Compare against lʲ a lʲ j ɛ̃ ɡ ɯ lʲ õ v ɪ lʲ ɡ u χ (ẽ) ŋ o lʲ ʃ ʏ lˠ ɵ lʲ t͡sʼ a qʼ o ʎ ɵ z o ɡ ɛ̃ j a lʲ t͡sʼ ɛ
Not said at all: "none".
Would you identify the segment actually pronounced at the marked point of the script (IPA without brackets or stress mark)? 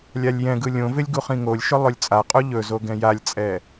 ĩ